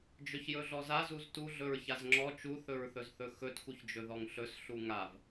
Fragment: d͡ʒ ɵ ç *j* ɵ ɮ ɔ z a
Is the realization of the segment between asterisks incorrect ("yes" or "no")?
no